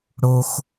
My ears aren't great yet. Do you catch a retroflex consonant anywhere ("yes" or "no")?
yes